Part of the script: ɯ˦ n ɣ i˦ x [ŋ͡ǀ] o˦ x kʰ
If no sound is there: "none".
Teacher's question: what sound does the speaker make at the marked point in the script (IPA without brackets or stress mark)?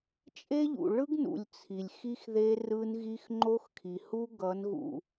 ŋ͡ǃ